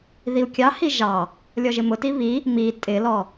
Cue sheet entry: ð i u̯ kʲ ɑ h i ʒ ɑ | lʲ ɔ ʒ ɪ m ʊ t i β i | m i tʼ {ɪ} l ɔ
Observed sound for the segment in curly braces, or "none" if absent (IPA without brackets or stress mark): ɪ